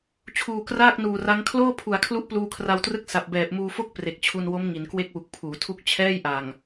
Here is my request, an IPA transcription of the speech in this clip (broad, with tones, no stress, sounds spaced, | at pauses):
t͡ɕʰ uː˨˩ k r aː˥˩ k̚ n uː˨˩ r a˦˥ ŋ kʰ l oː˥˩ pʰ u˩˦ a̯ kʰ l u˦˥ ʔ p l uː˧ kʰ r a˧ w t r ɯ˥˩ k̚ s a˨˩ p̚ b ɛː˨˩ p̚ m uː˧ f o˥˩ k̚ p r e˨˩ k̚ t͡ɕʰ u˧ n w o˦˥ m ŋ i˩˦ n k w e˥˩ k̚ w u˨˩ k̚ pʰ uː˩˦ tʰ u˥˩ k̚ t͡ɕʰ ɛː˥˩ j ʔ a˨˩ ŋ